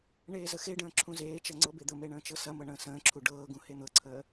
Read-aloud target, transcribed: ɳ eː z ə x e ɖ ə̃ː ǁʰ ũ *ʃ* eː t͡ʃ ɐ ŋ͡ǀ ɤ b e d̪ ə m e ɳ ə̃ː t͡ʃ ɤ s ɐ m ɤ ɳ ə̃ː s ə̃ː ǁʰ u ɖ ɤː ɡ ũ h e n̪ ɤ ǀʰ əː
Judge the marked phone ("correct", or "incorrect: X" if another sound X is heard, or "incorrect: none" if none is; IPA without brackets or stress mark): incorrect: z